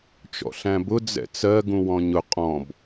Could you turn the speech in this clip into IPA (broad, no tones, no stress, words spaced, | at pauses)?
t͡ʃɔ̰ɬæ̃bʊ d͡zɛ̰t͡sɜɡũ wɔ̃ɲʊ qʼɔ̃b